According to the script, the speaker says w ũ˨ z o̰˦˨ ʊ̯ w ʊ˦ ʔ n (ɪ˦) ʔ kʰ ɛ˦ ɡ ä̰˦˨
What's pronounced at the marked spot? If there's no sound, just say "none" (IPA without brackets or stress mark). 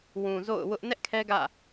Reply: ɛ˦